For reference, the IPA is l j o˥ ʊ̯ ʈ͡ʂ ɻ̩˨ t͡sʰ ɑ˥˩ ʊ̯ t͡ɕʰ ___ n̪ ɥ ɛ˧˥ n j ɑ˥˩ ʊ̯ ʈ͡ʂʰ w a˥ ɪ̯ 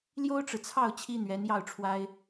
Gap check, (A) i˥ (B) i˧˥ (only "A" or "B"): A